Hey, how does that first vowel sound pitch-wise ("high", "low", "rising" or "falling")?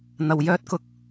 low